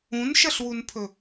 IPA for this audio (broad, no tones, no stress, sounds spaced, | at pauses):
ũ n ʃ ɐ ɬ w u n pʰ ɵ